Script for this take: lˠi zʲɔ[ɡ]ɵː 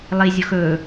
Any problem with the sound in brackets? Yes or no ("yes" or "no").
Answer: yes